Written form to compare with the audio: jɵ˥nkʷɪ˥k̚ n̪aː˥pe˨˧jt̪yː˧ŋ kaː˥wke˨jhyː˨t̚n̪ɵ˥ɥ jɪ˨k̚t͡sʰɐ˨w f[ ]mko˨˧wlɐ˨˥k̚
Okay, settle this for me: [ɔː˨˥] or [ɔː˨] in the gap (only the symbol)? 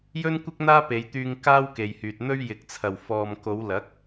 ɔː˨